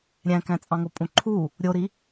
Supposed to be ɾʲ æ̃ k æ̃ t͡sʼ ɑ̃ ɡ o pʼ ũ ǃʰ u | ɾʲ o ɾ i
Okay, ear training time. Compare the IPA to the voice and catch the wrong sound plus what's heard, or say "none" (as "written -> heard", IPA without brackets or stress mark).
ɡ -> ŋ